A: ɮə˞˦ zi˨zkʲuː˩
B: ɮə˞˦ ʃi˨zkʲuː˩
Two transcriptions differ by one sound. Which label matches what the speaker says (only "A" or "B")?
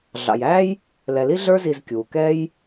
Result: A